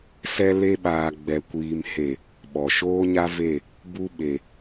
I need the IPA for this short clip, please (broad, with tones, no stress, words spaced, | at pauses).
sɛ˧le˧ɓaː˨ ɡ͡bɛ˨kʷiː˨m he˨ | ɓɔ˨ʃoː˦ɲa˦ve˦˨ | bu˦ ɓe˨